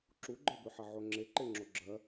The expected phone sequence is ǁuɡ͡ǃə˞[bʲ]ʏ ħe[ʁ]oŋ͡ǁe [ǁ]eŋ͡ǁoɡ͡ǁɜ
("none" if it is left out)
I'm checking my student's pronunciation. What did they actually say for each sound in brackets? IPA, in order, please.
b, ʕ, ǃ

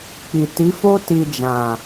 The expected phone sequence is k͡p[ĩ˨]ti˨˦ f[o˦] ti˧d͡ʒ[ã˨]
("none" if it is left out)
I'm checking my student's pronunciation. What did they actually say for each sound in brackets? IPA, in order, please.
i˨, o˦, ã˨

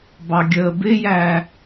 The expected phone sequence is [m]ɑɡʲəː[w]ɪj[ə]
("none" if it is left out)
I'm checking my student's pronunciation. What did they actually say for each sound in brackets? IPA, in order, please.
b, b, æ

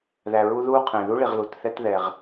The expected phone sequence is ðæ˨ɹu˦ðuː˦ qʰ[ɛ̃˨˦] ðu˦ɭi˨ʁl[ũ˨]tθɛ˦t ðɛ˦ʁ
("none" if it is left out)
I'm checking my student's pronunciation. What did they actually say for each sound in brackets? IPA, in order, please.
ɛ̃˨, u˨

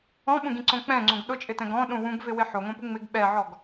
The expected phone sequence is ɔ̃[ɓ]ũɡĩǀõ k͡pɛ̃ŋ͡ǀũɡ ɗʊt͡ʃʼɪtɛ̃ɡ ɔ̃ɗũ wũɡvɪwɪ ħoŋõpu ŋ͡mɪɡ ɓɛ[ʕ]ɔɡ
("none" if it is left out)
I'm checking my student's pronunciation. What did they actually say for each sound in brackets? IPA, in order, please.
ɓ, ʕ

